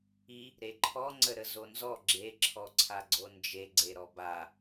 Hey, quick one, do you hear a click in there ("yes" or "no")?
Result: yes